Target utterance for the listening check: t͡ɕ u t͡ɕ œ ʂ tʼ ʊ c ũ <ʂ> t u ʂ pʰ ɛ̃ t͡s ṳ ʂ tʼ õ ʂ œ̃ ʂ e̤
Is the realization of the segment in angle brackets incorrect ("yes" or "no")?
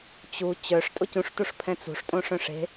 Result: no